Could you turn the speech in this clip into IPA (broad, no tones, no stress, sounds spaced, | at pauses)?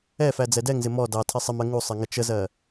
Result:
ɛ f æ d͡z ɛ d ɛ ŋ z ɪ m ɔ d ɑ tʰ ɪ sˤ ɪ m ɜ ŋ u sˤ ɪ ŋ ə t͡ʃ ə z ɜ